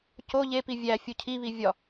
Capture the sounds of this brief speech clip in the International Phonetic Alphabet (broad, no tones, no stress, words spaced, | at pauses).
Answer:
co ʎepi vʲæfʲu cʰiβi vʲɒ